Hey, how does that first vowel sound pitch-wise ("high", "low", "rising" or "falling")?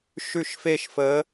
falling